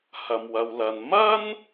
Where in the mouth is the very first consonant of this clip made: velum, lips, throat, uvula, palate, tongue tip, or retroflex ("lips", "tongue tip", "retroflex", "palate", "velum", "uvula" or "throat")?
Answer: throat